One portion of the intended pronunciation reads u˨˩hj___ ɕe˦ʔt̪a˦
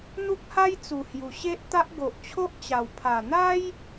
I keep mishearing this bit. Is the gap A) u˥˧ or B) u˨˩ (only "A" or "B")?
B